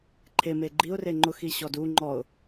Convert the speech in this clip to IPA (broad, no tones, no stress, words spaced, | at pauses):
ǃʰeme ɡ͡ǃiʊ̯re ŋ͡ǃʊxi ɕɔdu ŋ͡ǃɔʊ̯